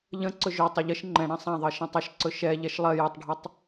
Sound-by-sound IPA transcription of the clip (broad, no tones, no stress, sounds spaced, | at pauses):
ʎ ə̃ ǀ ɵ ʒ ɵ tˤ ə ʎ ə ʃ ŋ͡ǃ ɛ̃ ɽ ã sˤ ã ðˤ ɜ ʃ ã tˤ ʌ ʃ ǀ ɵ ʃ ɛ ʎ ɛ ʃ lˠ ɜ j a tˤ ɖʱ ʌ tˤ